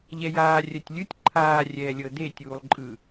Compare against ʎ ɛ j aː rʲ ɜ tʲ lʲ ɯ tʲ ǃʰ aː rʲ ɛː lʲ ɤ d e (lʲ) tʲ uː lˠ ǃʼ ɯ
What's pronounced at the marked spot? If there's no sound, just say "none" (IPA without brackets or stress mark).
none